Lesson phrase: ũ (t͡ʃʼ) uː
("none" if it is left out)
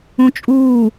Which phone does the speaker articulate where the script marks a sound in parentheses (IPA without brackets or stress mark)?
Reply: t͡ʃʼ